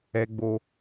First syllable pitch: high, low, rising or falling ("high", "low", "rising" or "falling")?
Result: high